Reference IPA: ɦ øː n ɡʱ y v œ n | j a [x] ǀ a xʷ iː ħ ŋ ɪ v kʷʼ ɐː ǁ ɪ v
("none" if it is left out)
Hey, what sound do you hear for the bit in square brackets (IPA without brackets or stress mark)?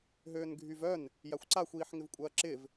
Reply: xʷ